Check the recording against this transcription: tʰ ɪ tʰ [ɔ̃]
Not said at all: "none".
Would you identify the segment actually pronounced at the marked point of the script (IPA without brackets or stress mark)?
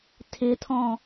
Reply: ɔ̃